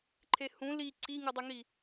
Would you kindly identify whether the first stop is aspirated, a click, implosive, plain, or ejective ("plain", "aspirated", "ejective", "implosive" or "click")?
click